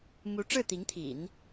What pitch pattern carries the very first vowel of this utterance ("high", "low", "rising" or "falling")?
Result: rising